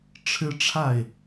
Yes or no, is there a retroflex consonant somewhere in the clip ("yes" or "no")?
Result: yes